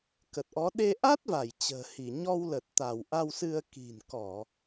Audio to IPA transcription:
kə˨˩t̚ʔɔ˨˦ ɗe˧ʔa˦˥t̚va˧˩j t͡ɕə̤ː˨˩hi˧˩ ɲɔ˧wlə˨˩t̚ t̪a˧˩wʔa˧wsɨ˧ə̯ ki̤˨˩nkɔ˧˩˨

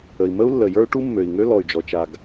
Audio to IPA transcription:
ə˩i̯mə˥u̯lːə˩ jə˞˥u̯ʈu˥mːø˩i̯ŋø˥ lɔ˩y̯d͡ʒɔ˩t͡ʃa˩ɡ

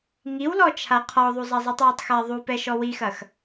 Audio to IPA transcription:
ŋiwlɔ t͡ʃʰaqʰɔðˤu zˤazˤitˤwatˤxa ðˤu pɛʃɔwixɐx

